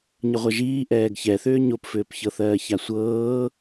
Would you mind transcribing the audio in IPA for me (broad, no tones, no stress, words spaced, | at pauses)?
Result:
ɲəʁʷɜʒiː ʔɛːɡçɛθʏː ɲopfʏːpçɤθɜː çasʷɤː